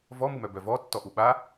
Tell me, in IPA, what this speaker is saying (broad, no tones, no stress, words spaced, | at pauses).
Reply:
vɔmumœ bœvɔ tːɔʔuɓa